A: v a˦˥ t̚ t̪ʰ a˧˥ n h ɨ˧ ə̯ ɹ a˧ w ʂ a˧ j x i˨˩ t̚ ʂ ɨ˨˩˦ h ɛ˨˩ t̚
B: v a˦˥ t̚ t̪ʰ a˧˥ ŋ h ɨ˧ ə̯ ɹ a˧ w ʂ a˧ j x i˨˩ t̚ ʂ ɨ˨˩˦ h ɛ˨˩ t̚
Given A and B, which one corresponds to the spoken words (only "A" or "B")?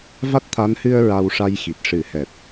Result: A